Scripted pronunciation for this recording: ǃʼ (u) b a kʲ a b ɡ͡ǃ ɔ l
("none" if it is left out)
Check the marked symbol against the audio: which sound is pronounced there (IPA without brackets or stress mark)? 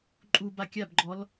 u